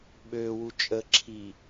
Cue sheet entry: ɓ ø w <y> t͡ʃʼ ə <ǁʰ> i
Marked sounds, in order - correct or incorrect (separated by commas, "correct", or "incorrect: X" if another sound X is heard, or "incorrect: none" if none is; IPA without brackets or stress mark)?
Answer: incorrect: u, correct